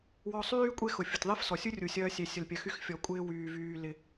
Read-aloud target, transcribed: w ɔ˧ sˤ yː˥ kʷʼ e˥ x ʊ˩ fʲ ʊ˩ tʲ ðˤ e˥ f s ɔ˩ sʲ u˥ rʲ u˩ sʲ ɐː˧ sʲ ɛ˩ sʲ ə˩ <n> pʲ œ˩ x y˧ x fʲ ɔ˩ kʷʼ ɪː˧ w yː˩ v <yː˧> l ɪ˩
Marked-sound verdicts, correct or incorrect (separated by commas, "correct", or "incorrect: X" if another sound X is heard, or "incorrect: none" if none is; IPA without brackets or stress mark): incorrect: l, incorrect: yː˩